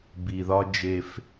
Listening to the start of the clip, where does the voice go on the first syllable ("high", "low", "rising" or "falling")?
low